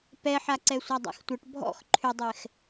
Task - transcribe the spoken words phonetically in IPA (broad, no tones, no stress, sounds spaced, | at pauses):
p ɛ ħ a ǀ ɛ sʷ a dˤ a̰ x tʷ ə ʈ bʱ ɔ̰ x ǃʰ ʏ dˤ ɛ x